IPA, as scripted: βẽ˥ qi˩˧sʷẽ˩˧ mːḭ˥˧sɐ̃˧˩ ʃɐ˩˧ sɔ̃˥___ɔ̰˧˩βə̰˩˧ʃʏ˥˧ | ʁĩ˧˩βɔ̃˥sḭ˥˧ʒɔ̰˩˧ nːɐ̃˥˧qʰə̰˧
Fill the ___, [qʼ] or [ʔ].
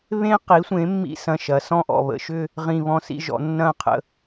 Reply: ʔ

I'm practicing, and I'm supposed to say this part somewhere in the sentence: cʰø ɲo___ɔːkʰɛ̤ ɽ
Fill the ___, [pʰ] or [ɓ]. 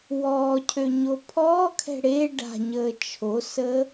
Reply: pʰ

